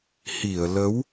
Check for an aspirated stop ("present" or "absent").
absent